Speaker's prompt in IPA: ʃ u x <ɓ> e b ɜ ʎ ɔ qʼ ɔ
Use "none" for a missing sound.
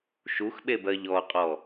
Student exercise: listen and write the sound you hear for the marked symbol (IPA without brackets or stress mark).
ɓ